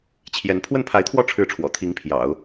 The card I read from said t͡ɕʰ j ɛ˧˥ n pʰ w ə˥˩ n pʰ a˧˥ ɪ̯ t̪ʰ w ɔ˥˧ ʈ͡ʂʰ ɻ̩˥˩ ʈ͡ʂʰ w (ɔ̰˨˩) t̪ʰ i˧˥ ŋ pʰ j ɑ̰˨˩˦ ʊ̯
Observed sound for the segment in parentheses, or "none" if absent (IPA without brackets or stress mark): ɔ̰˨˩